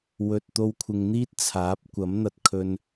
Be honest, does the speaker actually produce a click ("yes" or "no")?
no